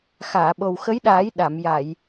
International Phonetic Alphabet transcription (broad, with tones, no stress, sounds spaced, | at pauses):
x aː˨˩˨ ɓ o˨˩ w x ə˧˥ j ɗ aː˨˩˦ j ɗ a˨˩˨ m j a˨˩˨ j